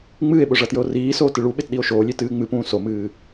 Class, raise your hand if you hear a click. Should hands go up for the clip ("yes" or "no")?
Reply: no